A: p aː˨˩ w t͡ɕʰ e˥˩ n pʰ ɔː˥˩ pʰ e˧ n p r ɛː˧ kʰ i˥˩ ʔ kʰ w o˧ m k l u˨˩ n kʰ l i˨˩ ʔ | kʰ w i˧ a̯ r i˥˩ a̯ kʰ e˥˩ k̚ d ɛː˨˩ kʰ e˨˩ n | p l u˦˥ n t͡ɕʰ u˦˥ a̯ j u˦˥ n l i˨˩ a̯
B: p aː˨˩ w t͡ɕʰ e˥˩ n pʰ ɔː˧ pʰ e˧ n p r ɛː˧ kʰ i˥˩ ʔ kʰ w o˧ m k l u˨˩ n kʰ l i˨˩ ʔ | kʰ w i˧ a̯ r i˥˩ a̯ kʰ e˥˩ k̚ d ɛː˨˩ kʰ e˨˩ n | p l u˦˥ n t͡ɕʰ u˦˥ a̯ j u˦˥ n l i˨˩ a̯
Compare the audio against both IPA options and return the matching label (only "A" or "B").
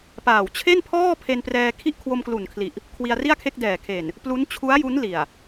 A